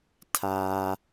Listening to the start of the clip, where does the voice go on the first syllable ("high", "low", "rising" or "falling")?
high